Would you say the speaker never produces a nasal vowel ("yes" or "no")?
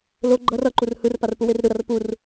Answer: yes